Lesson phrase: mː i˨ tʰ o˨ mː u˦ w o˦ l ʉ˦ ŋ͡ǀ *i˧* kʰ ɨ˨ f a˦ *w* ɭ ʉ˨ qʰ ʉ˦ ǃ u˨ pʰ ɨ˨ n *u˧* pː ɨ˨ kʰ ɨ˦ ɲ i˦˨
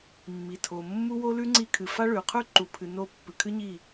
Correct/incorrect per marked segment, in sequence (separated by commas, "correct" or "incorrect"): correct, incorrect, incorrect